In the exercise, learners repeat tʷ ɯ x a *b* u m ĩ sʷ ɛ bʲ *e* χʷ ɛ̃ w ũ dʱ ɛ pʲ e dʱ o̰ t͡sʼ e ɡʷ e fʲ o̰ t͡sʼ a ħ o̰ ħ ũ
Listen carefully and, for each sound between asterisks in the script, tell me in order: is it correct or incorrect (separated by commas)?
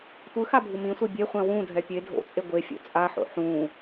incorrect, correct